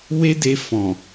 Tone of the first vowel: high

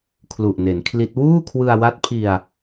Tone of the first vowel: low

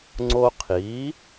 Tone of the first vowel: high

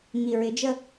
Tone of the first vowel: low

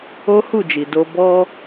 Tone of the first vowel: high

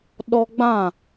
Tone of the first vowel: high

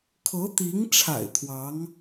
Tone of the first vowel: rising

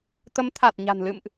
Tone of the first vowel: rising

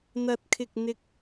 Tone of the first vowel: low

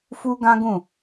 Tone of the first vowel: high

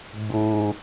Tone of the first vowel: low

